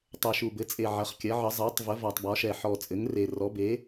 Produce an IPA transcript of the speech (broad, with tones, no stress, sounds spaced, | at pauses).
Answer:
tˤ ɛ˨˩ ʃ u˨˩ b ɘ˩˥ t͡sʼ e˨˩ ʕ ɐ˩˥ χ kʲ ɐ˩˥ ʕ ə˩˥ zˤ ɛ˩˥ tˤ v ə˩˥ v ɒ˨˩ tˤ b ɒ˩˥ ʃ ɛ˨˩ ħ ɔ˨˩ t͡sʼ ɘ˩˥ ŋ r e˨˩ r ɔ˩˥ b e˩˥